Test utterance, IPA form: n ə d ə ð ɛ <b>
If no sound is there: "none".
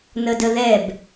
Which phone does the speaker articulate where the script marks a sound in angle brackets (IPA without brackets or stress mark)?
b